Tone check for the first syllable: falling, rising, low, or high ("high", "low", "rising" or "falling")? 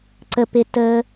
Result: low